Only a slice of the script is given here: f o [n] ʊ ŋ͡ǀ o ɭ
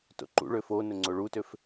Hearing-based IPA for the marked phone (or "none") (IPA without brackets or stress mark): n